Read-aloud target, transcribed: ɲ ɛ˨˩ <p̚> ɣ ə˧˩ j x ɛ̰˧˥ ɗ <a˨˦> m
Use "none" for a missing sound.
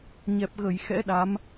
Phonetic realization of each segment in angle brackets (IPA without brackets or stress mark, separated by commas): p̚, a˨˦